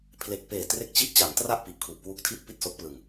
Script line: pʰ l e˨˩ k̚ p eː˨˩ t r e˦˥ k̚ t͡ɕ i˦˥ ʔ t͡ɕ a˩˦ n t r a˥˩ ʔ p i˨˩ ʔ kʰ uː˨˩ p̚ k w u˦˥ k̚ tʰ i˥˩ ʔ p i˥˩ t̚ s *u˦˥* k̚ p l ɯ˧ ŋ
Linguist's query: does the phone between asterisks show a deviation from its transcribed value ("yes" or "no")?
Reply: yes